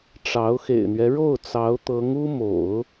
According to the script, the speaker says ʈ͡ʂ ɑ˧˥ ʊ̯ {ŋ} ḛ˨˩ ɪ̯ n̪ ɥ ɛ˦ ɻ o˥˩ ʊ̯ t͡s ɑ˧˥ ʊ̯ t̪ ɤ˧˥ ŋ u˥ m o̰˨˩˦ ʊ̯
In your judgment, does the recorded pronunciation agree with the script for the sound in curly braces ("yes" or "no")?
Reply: no